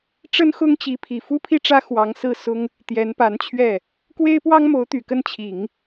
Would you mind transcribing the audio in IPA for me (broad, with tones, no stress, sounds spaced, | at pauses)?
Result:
ʈ͡ʂ ə˥ n x ʊ˥ ŋ t͡ɕ i˧˥ pʰ i˨˩ f u˥ pʰ i˥˩ ʈ͡ʂ ä˥ x w ɑ˧˥ ŋ s ɹ̩˥˩ s ʊ˥ ŋ | t̪ j ɛ˧˥ n p a˧˥ n t͡ɕʰ ɥ ɛ˥˩ | k w e˥ ɪ̯ p w ɑ˥ ŋ m o˧˥ ʊ̯ t̪ y˨˩ k ə˥˩ n t͡ɕʰ i˨˩˦ ŋ